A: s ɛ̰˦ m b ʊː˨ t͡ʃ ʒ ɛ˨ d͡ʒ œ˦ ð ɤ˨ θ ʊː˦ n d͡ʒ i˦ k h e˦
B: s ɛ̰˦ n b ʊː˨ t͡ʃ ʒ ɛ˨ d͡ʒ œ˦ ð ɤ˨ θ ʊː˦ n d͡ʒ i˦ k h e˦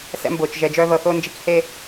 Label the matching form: A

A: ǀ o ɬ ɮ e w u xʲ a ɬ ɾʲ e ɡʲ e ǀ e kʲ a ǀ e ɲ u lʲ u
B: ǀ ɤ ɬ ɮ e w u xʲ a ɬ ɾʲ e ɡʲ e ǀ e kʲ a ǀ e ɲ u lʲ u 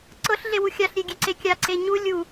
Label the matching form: B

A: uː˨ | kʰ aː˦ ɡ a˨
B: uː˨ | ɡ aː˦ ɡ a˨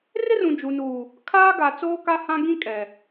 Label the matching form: A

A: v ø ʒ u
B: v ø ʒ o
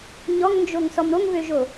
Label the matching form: B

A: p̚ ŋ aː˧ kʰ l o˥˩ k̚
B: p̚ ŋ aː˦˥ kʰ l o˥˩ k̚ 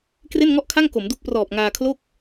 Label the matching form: A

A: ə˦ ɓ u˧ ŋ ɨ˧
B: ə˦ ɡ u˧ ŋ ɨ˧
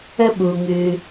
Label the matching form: A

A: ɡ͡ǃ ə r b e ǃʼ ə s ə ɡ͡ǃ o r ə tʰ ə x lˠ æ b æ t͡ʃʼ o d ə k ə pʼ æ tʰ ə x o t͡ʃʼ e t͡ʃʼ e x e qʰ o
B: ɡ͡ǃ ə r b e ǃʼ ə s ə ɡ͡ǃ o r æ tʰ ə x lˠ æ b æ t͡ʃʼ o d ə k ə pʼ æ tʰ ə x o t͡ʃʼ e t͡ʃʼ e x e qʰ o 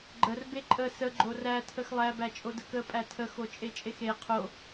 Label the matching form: B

